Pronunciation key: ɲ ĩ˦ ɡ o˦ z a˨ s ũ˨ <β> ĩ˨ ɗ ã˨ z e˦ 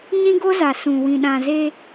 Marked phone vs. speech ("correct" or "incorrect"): incorrect